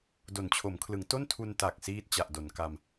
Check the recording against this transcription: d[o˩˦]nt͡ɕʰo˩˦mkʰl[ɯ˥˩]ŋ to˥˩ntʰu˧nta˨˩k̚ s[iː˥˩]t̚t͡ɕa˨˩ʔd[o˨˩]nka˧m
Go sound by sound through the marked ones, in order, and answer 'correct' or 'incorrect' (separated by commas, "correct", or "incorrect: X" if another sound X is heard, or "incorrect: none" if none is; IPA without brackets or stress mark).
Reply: correct, incorrect: ɯ˩˦, correct, incorrect: o˩˦